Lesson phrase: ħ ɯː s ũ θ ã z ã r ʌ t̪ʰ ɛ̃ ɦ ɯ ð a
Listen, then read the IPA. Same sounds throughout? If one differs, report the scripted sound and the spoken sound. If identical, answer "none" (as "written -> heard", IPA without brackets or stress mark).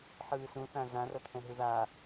none